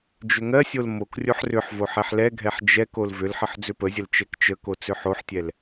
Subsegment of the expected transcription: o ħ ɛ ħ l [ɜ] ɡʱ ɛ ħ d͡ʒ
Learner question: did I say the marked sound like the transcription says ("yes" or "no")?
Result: no